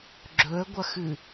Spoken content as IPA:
ɡ͡ǁ ɵ ə̯ ɡʷ ɐ x ɨ

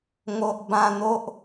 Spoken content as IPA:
ŋ o˨ ʔ b ã˧ n̪ o˦ ʔ

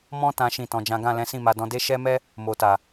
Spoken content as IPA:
m ɔ̃˦ t ã˦ ʃ ĩ˦˨ t ɔ̃˧ d͡ʒ ã˦ ɡ ã˦˨ l ɛ̃˨˦ s ĩ˦˨ m a˧ d ɔ̃˧ d e˦ ʃ ɛ˦ m ɛ˦ | m o˨ t a˨

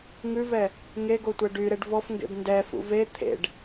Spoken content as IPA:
ŋ ʉ v ɛ | ŋ e ɡ o tʷ ɛ ɖ y ɾ e ɖ v ɔ f ŋ ɡ ḛ b n d ɛ f ṵ v e t̪ʰ ḛ ɖ

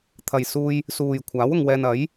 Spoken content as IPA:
t̪ʰ ɐ˨ j s uː˧ j | s uː˨ j kʷʰ aː˨˥ w ʊ˨ ŋ w ɛː˧ n ɐ˨˥ j

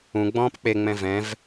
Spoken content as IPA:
ũ ɡ͡b ɔ̃ː p k͡p e ŋ͡m ɛ̃ v ɛ̃ v

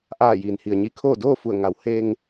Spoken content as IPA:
ʔ aː˧˩ j iː˩ n h i˩ ə̯ ɲ i˧ kʰ oː˥˨ d oː˥˨ f u˧˩ ə̯ ŋ a˩˧ w h e˧ ŋ

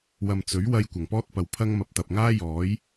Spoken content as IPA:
w ɐ˨ m t͡s ɵ˨˥ ɥ w ɐ˧ j kʷ ɐ˨˩ ŋ p ɔː˥ t̚ p ɐ˨ w pʰ ɐ˥ ŋ m ɐ˨ p̚ t̪ ɐ˨ p̚ ŋ aː˥ j ɔː˨˥ j

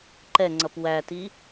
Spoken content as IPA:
ǃ ɛ ŋ͡ǀ ʌ p w æ t i

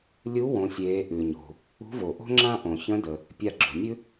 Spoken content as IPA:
lʲ u˧˥ w õ˩˧ sʲ eː˩˧ ʔ ʉ˩ ɲ o̤˩ | ṳ˧˥ v o˩ ʔ o̤˥ ŋ͡ǁ ã˥ ʔ õ˩ ç ə̃˧˥ d ə˩ | pʲ a˧ ɡ͡ǁ o̤˩ nʲ ʉ˥

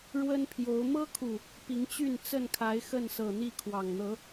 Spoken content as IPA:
ɻ w ə˦ n pʰ j o˨˦ ʊ̯ m ɤ˦ kʰ u˨˩ | p i˨˦ ŋ t͡ɕ y˥˨ n t͡s ə˥˨ n kʰ a˨˦ ɪ̯ x ə˥˨ n s ɤ˨˩ n̪ i˥˨ kʰ w ɑ˨˩ ŋ n̪ ɤ˨˦

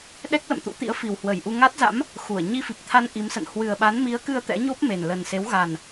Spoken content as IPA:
ɗ ɛ˦˥ k̚ l ə̰˧˨ m t̪ ṵ˧˥ t̪ ḭ˧˥ ə̯ f i˨˩ w h w ə˧˩ j ʔ u˧ ŋ a˦˥ t̚ z a̰˧˥ m | x u˧˩ ə̯ ɲ i˧ f i˨˩ p̚ t̪ʰ a˧ n ʔ i˨˦ m s ə̰˧˨ n h w ɨ˨˩ ə̯ ɓ a˨˦ n m i˨˦ ə̯ k ɨ˧ ə̯ t̪ ɛ̰˧˥ ɲ o˦˥ p̚ m e˨˩ n l ə˨˩ n s e˨˦ w ɣ a˨˩ n

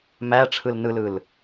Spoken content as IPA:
m æ ʈ͡ʂʰ ɯ l n ɯ l ɯ l

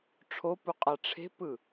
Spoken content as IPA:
ʈ͡ʂʰ o p u qʼ a ʈ͡ʂʰ e̤ p ɯ

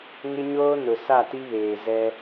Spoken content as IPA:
ŋ ɪ˦ ɲ oː˦ n ʊ˨ s a˦˨ t i˦ β eː˨ z ɛ˦

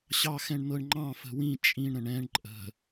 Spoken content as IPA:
ɕ ɑ x ɛ̃ ɳ n̪ ɤ ɳ ŋ͡ǃ ɑ̃ f ə̤ w ĩ t͡ʃʼ ĩ ɳ ɾ ə̃ ɳ ɛ̃ ɳ ǃʼ ə̤

